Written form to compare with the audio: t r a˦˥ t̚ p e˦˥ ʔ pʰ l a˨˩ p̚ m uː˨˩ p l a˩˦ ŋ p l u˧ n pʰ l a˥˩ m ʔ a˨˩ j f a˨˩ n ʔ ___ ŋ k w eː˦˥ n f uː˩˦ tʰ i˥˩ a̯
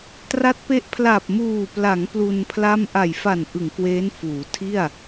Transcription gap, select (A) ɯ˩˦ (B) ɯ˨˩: A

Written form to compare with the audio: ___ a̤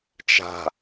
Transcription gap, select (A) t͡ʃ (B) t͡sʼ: A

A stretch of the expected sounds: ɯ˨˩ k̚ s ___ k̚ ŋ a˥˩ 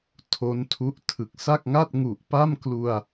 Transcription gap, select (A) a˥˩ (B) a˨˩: A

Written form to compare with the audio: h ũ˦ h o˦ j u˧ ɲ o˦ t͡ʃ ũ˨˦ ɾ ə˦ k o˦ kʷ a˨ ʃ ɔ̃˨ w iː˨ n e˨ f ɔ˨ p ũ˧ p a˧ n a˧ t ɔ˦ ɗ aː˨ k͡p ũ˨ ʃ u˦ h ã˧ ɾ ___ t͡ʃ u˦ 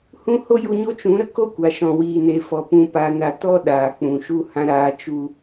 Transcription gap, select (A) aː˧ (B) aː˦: A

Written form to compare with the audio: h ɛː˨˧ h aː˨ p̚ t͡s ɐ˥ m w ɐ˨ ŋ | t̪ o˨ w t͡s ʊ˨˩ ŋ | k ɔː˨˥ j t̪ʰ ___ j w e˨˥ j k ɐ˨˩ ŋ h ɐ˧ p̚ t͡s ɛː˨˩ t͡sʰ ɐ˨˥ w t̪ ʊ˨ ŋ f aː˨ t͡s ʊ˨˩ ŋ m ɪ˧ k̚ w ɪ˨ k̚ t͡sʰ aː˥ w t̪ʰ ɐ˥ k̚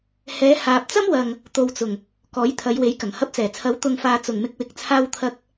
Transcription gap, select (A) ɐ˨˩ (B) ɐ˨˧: B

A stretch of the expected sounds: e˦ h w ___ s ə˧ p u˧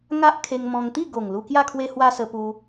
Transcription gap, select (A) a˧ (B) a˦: B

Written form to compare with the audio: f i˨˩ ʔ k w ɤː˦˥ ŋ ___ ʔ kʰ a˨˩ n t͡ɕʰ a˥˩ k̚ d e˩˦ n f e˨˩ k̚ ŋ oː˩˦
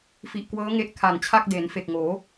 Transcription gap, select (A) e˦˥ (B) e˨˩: A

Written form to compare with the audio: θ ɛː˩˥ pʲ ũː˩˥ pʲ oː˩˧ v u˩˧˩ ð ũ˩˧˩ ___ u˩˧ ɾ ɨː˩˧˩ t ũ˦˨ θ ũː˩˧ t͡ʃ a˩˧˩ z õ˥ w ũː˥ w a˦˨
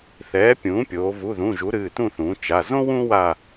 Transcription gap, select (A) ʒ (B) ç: A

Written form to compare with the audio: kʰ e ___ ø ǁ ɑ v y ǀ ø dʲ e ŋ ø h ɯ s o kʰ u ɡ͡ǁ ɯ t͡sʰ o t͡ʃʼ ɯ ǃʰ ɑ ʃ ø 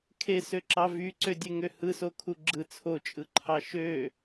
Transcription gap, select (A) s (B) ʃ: A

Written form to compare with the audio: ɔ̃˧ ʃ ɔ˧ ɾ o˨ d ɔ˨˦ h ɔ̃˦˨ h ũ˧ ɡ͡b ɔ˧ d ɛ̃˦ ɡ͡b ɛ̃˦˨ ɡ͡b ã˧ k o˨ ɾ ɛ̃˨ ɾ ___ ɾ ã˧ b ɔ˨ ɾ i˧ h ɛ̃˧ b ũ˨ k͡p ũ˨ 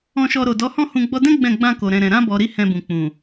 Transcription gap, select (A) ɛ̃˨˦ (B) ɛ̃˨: B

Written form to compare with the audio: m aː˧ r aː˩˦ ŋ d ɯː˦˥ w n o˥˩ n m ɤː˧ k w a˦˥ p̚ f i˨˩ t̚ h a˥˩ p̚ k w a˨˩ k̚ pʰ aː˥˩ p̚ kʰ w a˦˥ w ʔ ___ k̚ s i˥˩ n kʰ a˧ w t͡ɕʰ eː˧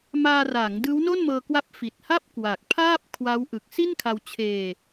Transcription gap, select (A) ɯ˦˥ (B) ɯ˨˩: B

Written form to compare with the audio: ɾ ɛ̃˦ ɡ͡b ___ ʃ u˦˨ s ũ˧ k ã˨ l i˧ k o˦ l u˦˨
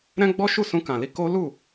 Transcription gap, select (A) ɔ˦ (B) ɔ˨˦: A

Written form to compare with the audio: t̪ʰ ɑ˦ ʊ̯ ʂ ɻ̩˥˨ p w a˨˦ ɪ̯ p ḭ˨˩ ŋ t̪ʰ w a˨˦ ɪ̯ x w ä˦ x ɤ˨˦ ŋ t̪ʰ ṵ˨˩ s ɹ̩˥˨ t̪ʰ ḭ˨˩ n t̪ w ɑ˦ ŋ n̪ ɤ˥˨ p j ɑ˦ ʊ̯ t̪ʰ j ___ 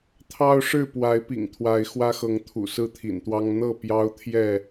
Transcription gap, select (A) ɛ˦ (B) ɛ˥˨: B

